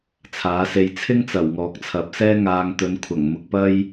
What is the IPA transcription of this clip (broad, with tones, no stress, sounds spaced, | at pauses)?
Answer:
t͡sʰ aː˨˥ s e˧ j t͡sʰ ɪ˥ ŋ t͡s ɐ˨˩ w ŋ ɔː˨˥ k̚ t͡sʰ ɐ˨˥ p̚ s ɛː˥ ŋ aː˧ ŋ t̪ ɵ˨˧ n kʷʰ ɐ˨˩ ŋ m ʊ˧ k̚ p ɐ˥ j